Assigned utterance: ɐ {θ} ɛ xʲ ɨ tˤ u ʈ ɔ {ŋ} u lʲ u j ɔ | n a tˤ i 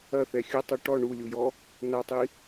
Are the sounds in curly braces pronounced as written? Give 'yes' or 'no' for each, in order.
yes, no

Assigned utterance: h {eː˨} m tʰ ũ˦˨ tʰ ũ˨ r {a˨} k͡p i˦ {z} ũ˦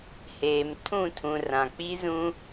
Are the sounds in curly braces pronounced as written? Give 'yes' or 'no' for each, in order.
yes, no, yes

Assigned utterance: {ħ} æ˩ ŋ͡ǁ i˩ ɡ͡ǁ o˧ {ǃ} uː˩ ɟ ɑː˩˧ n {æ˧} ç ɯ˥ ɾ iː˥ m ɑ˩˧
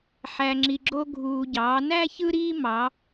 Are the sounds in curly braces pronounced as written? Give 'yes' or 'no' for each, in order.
yes, no, no

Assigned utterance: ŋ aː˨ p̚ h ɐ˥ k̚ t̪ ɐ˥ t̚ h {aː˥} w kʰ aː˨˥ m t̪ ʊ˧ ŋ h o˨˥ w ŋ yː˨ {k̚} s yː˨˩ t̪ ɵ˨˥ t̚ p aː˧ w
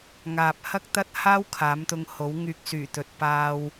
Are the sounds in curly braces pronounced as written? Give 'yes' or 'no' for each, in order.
yes, yes

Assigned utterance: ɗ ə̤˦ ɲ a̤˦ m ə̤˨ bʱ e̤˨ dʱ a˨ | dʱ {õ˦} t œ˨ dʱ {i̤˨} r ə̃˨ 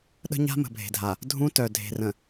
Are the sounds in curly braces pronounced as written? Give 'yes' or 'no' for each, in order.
no, no

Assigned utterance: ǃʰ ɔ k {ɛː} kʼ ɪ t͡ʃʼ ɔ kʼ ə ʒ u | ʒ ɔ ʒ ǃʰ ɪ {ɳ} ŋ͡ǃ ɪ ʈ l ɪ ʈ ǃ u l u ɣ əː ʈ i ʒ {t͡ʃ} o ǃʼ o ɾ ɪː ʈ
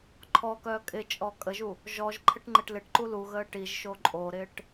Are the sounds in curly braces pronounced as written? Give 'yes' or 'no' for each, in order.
no, no, no

